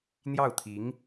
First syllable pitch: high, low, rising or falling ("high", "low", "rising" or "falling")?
falling